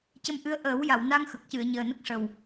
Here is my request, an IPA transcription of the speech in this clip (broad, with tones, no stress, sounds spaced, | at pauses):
c ə˧ m ʔ ɨ˧˥ ə̯ ʔ əː˨˩˦ w j a˨˩˨ w n a˧ ŋ x ə˨˩ k̚ c ɨ˨˩˨ ə̯ ɲ əː˨˩ n ə˦˥ k̚ ʂ ə˨˩ w